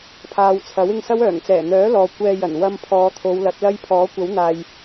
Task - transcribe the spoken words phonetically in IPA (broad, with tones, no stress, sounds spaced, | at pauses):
pʰ aː˨ w t͡sʰ ɐ˨˥ w ɪ˧ ŋ s ɐ˥ w œː˨˩ ŋ t͡s ɛː˨˩ n̪ œː˨˥ l ɔː˨ kʷ ɛː˧ j ɐ˨˩ n w ɐ˧ m pʰ ɔː˨˧ t̪ʰ o˨˧ w l ɐ˨˥ t̚ l ɐ˥ j pʰ ɔː˨˥ kʷ ɐ˨˥ w n̪ aː˨ j